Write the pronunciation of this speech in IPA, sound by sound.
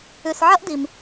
ʉ˨ s ʕ ɐ˥ ʔ d i˨ m

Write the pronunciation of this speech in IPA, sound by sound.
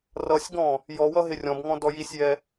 r ʌ sʲ ɡ ɔ̃ | j ɔ w ʌ ɦ ɪ rʲ ɔ̃ b ŋ ɔ̃ d ɔ j i sʲ j ɛ

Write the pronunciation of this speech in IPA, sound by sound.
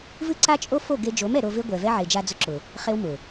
v ɨ˦ ǀ a˦ t͡ʃʼ o˦ f o˦˨ ɡ e˧ d͡ʒ o˨˦ m ɛ˨ ɾ o˧ v e˦ ɡʷ ɛ˨ v ɛ˦ ʕ e˨ d͡ʒ a˧ d͡z ʊ˧ ǁ ʊ˨ | χ e˦ w m ʊ˨

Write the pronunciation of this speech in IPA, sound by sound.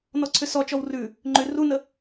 n ɔ ǀʰ ʏ s ɔ t͡ʃ ɔ w r ʉ | ŋ͡ǃ ʏ r u n ə

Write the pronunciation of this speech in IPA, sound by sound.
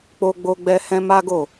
k͡p o˧ ɡ͡b o˧ ɡ͡b ɛ˧ h ɛ̃˦ m a˦ ɡ o˦˨

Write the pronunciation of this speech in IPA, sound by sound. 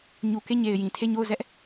ɲ u˨ k e˦˨ ɲ e˨ ɪ̯ j ĩ˨ tʰ e˦˨ ɲ o˦˨ ʊ̯ z ɛ˦ ʔ

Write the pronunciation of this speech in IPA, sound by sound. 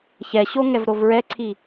ç ɛ ɕ o ŋ ɛ v ɾ o v ɹ ɛ ǀʰ i

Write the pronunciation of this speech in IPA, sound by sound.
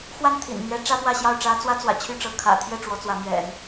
x w a˥˩ n t̪ʰ ḭ˨˩ n m ɥ ɛ˧˥ ʈ͡ʂ ä˥ p w ä˥˧ ɕ j ɑ˥˩ ʊ̯ ʈ͡ʂ ä˥ t͡s w ä˥ t͡s w ä̰˨˩ t͡ɕʰ y˥˩ ʈ͡ʂ ɤ˧˥ kʰ ä̰˨˩ t̪ʰ j ɛ˥˩ ʈ͡ʂ w ɔ˧˥ t͡s w ä˧˥ m ɥ ɛ̰˨˩˦ n

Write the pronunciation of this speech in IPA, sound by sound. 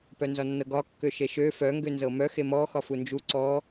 p œ n z ɒ nː ɤ ɡ ɒ kː ø ʃ e ʃ ø f œ ŋ ɡ ø n z ɤ m œ x e m ɔ x ɒ f u n d͡ʒ u ǀ ɔ

